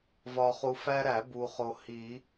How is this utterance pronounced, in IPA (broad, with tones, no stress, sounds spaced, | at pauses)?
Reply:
v ɒ˨ χ u˨ f æ˦ ɾ æ˨˩˦ b u˨ χ o˨ h i˨˩˦